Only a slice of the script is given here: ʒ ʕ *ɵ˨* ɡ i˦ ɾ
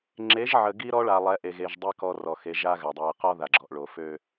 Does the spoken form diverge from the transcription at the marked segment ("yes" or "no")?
yes